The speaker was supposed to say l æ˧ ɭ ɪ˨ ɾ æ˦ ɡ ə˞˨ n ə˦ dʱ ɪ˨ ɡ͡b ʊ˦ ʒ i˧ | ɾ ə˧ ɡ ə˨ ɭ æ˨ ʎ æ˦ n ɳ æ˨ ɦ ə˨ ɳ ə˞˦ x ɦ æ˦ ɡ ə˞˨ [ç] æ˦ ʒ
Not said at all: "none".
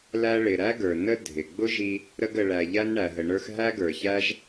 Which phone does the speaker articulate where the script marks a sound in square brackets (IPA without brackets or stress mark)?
ç